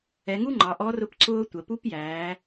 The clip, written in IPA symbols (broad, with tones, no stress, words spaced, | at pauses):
ɛ˩˧ŋu˥ ŋ͡ǃɑ˩˧ʔɔ˧˥rʊ˧˥p ǀʊː˥tʷə˩˧ pu˧˥pjæː˩˧